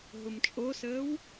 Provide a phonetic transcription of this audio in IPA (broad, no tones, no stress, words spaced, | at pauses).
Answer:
ɦʊmt͡ʃʼosəːw